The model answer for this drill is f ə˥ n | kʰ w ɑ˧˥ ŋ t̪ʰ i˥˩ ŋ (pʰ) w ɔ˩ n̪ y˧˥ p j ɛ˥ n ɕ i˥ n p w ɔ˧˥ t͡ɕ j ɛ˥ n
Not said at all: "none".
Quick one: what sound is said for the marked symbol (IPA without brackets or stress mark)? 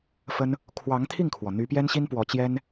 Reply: kʰ